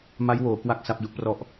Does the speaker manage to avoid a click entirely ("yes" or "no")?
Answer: yes